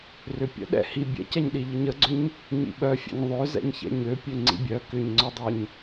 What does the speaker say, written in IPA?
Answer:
r ʏ pʲ ə̰ ɗ ɛ̰ h i bʲ ɛ̰ c ɛ ɲ ɗ i ʎ ə ɲ ə ɡ͡ǀ ʏ ɲ | ɲ ḭ ɓ œ fʲ ɛ̰ ɲ ðˤ ø z ɛ̰ ɲ ç ɛ̰ ɲ ø pʲ ø ŋ͡ǀ ḭ bʲ œ k ʏ ɲ ŋ͡ǀ œ dˤ ø ɲ

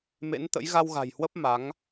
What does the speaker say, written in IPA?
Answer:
m ḛ˧˥ n t̪ ə̰˧˥ j ɣ a˧ w ɣ a̤˨˩ j h w ə˦˥ p̚ m a˨˦ ŋ

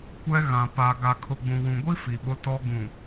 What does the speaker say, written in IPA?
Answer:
kʷ ɛ˦ ɣ ã˨ p a˨ ɡ a˨ kʰ ʊ˨ ɡ͡b ũ˨ w ũ˨ ɡʷ i˦ f i˨ ɓ ʊ˦ t ɔ˦ ɡ ũ˨

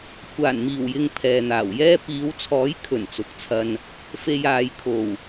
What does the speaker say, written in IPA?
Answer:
kʷʰ aː˨˩ n m iː˨˩ w j ɪ˨ ŋ pʰ ɛː˨ n̪ aː˨˩ w j ɛː˥ p iː˨˧ w t͡sʰ ɔː˨˥ j kʰ ɵ˨˩ n t͡s ʊ˨˥ k̚ t͡sʰ ɐ˧ n | f e˧ j aː˨ j kʰ o˨˩ w

